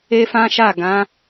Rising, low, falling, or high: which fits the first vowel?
high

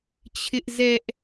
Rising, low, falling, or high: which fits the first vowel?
high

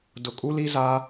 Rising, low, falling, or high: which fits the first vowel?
low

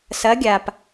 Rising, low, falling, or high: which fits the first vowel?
rising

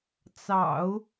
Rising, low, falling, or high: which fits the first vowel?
low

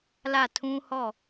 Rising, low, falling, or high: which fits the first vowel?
falling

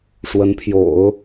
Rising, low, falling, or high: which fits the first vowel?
rising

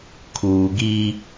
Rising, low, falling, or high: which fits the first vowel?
low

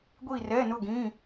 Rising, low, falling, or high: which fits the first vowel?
falling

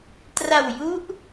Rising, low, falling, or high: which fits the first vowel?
low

